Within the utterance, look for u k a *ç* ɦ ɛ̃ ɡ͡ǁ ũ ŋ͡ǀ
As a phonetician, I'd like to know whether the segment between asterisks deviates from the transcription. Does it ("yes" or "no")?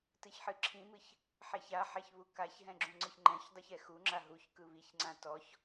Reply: no